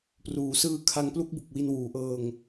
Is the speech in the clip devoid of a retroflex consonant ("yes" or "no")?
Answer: yes